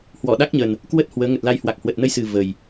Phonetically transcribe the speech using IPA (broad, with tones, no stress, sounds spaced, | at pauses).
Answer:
h w ɔ˧˩ ɗ a˦˥ k̚ ɲ ə˨˩ n | k w ə˦˥ t̚ h w əː˨˦ ŋ ə˨˩ t̚ l a˧ j h w a˨˩ k̚ h w ə˨˩ t̚ n ə˧ j s ɨ˨˩ v ə˨˩ j